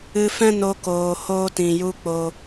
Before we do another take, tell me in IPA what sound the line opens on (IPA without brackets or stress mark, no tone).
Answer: ɨ